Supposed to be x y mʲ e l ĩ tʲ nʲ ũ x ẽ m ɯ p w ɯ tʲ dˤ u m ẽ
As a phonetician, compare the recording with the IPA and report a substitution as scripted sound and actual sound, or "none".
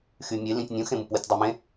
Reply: none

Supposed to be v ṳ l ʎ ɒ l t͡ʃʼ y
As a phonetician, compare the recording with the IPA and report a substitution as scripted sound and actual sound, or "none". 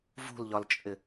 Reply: y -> ɪ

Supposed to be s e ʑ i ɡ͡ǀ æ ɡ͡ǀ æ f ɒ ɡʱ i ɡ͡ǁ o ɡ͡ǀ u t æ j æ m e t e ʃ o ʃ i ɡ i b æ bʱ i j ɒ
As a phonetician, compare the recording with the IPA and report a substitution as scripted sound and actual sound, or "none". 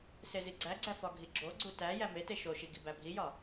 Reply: ʑ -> z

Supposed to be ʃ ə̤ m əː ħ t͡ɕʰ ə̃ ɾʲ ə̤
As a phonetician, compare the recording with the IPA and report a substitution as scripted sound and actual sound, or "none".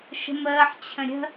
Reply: none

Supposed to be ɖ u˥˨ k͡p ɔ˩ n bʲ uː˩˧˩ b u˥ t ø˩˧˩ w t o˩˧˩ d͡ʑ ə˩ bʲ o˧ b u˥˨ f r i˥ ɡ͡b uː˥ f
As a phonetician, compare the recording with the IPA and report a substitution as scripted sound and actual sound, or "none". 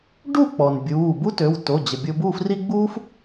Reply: none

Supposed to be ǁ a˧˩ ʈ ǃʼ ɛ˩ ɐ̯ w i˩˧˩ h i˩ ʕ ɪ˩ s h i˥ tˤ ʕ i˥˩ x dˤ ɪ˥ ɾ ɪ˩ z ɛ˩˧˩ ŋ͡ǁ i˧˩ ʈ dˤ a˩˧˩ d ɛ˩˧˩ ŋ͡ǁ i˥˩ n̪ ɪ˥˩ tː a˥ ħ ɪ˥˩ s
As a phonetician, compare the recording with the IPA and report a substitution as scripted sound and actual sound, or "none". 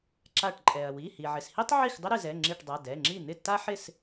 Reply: none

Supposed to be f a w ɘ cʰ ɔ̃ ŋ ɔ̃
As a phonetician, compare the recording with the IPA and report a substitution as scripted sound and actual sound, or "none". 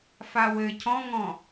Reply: none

